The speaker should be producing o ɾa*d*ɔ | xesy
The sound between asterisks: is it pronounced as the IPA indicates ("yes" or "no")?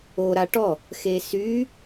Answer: no